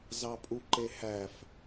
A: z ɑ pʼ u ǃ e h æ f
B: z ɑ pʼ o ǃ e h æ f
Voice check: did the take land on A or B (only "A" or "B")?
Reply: A